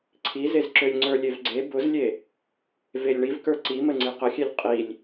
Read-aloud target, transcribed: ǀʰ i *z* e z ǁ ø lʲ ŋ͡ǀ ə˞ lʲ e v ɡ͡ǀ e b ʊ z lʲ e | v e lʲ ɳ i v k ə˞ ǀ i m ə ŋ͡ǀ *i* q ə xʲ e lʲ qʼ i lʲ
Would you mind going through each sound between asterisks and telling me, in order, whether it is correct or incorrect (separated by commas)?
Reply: correct, correct